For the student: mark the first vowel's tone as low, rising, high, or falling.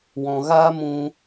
low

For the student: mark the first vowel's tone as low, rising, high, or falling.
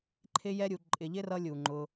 high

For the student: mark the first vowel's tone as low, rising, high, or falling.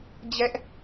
high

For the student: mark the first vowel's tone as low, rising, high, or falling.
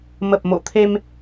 low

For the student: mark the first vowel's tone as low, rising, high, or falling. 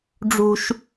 high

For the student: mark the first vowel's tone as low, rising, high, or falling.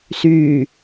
low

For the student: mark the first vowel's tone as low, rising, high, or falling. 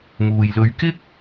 low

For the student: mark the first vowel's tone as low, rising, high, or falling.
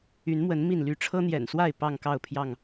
rising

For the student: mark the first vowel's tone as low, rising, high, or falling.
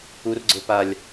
low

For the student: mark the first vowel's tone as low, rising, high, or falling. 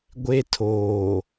high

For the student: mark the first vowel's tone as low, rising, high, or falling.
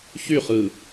falling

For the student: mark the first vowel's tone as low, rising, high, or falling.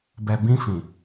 low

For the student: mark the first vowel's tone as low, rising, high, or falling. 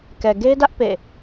low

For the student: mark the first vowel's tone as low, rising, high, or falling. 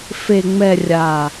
low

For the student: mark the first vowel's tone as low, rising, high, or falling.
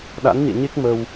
rising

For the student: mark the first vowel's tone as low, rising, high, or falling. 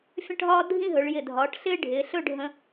falling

